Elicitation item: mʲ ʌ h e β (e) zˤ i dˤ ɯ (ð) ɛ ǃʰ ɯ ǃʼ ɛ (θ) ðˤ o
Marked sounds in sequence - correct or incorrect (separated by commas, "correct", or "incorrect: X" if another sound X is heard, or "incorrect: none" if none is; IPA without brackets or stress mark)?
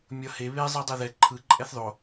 correct, correct, correct